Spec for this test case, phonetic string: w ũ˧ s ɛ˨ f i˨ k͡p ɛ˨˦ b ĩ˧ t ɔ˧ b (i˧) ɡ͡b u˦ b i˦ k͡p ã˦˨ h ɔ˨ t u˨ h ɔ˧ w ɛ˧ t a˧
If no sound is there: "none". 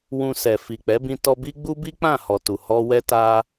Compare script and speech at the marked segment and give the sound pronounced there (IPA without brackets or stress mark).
i˦